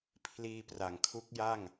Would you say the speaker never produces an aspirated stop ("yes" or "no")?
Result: no